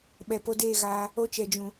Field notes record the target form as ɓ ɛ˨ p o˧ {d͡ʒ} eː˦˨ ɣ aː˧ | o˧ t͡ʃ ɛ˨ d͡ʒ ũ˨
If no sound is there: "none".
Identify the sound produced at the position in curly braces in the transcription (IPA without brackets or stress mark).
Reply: d